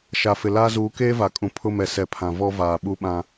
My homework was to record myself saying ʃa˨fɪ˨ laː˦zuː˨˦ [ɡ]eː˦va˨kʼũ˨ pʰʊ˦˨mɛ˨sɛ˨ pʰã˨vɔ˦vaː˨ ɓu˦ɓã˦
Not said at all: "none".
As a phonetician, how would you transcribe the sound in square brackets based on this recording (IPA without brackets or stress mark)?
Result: k